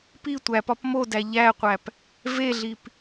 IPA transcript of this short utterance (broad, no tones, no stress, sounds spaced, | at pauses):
p i tʷ æ p ɒ p m o d æ ʎ æ qʷ æ p | v e ɮ i p